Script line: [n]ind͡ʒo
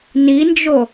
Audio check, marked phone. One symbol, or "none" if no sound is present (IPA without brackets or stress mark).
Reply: n